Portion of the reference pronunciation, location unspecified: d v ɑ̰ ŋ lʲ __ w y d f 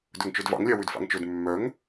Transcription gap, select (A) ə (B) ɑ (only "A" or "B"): B